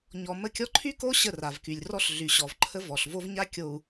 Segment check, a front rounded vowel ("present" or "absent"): present